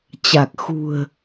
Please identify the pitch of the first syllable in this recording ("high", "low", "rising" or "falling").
low